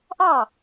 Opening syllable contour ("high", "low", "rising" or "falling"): falling